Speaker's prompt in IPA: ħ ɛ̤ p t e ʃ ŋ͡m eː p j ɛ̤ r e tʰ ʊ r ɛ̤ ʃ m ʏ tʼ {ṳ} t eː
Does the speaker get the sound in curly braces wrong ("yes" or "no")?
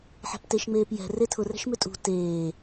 no